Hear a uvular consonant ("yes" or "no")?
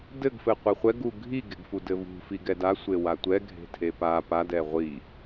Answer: yes